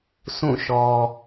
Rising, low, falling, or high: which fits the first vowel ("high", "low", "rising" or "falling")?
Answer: falling